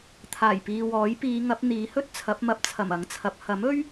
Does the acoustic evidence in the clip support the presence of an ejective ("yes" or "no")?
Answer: no